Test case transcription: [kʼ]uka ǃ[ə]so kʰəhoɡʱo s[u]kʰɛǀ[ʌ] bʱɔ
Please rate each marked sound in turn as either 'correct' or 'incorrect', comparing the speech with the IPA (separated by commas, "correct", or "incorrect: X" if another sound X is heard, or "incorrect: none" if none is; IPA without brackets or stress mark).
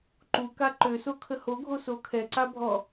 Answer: incorrect: ǃ, incorrect: ø, incorrect: o, incorrect: a